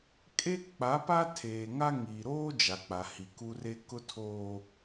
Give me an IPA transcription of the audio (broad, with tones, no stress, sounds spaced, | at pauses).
kʼ e˦ k͡p a˨˦ p a˦ tʰ eː˨ ŋ a˦ ŋ iː˨ ɾ oː˦ d͡ʒ a˨ k͡p a˨ h i˨ k u˦ r e˦ k ʊ˦ tʰ oː˦